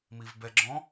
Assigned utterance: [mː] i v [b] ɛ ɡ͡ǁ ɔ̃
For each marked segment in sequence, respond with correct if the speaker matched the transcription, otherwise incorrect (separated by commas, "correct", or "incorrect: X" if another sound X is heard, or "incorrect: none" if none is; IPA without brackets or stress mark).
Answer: incorrect: m, correct